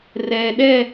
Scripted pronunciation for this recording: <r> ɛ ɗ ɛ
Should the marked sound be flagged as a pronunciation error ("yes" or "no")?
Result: no